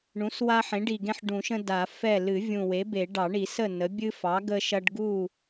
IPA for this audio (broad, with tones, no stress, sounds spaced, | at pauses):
ɳ ũ˩˥ s w a˦ ħ ẽ˩˥ ɖ i˨˩ ɡ ẽ˦ ħ ɖ ũ˨˩˦ ʃ ə̃˦ d a˨˩˦ f ɛ˥˨ l ɨ˨˩˦ vʲ ũ˨˩ w e˩˥ b e˨˩˦ ɖ ɑ˨˩˦ ɳ i˨˩˦ s ə˥˨ n ə˩˥ bʲ ɨ˦ f ɑ˩˥ ɡ ə˦ ʃ ɐ˦ ɖ ɡ u˥˨